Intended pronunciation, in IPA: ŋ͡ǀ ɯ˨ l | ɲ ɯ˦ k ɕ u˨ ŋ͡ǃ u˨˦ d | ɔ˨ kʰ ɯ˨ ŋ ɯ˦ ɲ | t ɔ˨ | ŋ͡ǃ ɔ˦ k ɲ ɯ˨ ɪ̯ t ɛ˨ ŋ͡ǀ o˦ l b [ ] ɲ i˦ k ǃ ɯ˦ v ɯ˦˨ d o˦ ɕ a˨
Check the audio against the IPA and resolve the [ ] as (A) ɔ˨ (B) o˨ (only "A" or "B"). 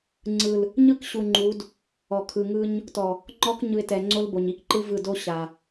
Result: B